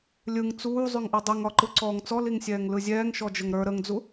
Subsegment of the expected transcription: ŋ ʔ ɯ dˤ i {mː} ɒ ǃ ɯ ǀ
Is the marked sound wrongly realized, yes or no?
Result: yes